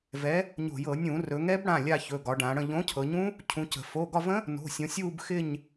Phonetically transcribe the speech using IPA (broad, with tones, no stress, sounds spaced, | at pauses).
v ɛ˨˥ | ɲ o̤˧˩˧ j ɤ˧˩˧ nʲ ũ˧˩˧ r ɵ˩˧ ŋ ɛ˦˥ b ɽ ã˩˧˩ lʲ a˦˨ ç ɵ˩˧˩ ɡ ɒ˩˧ ɖ ã˩˧ ɽ ə̃˦˨ ʎ õ˨˥ cʰ ɤ˩˧ ɲ ũ˦˥ | cʰ ũ˨˥ c ə̤˧˩˧ f o˩˧˩ ɡ ɒ˦˨ v ə̃˦˥ | n o̤˩˧˩ sʲ õ˩˧ sʲ uː˦˨ b x ɪ˦˨ ɲ